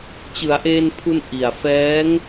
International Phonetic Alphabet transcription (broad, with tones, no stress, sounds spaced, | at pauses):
t͡ɕ ɯ˩˦ a̯ ʔ eː˧ n pʰ u˧ n ʔ i˨˩ a̯ f ɛː˦˥ ŋ